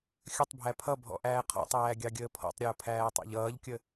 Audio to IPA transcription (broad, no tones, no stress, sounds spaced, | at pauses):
xʲ ə tˤ bʱ æ pʰ ʌ bʱ ɔ̰ ʔ æː qʰ ɔ̰ tˤ æː ɡʲ ɑ ɡʲ əː pʰ ɔ̰ tˤ ɾʲ ʊː pʰ æː tˤ ɑ̰ ʎ ʌː ʎ kʲ ə